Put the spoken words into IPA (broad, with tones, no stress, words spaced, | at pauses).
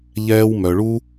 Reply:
ʎɛː˧wmœ˨ɭu˦